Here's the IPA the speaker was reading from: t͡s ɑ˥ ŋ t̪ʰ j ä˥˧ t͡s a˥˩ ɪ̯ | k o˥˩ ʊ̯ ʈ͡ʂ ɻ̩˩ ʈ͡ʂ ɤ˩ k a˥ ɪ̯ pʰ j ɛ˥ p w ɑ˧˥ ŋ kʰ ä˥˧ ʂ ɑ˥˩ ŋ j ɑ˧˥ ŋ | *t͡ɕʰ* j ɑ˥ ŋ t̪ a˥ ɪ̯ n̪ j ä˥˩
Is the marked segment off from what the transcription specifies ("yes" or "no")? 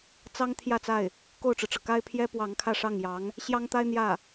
yes